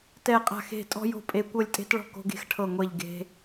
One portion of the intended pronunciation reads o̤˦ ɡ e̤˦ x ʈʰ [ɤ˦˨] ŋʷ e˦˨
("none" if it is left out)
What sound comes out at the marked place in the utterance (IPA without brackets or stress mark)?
ɤ˦˨